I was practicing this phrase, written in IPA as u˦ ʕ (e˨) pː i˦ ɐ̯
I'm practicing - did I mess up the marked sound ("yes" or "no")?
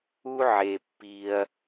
no